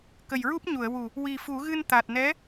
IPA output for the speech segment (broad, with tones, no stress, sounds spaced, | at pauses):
k ə˨˩ j ɹ u˦˥ p̚ ɲ u˨˩˨ ə̯ w u˨˩ | w i˨˩ f u˨˩˦ ɣ ɨ˧ n t̪ a˨˩ t̚ n ɛ˧˥